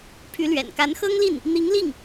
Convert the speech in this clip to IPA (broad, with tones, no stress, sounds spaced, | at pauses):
pʰ y˧˥ l ɥ ɛ̰˨˩ n k a˧˥ n x ɤ˥ ŋ l i˥˩ n | n̪ i˧˥ ŋ l i˥˩ ŋ